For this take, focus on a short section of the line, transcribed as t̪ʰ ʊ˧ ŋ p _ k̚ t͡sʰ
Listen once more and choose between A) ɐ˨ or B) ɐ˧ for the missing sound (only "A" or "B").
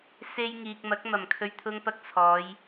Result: B